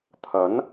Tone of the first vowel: rising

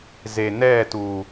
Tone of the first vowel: low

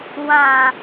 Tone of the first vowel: low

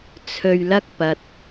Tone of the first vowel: low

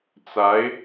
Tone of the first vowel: rising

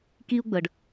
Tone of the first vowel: high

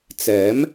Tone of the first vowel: rising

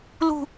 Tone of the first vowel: low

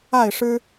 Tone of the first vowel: falling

